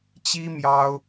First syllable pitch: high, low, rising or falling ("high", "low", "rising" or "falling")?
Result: high